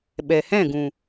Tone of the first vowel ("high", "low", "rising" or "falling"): low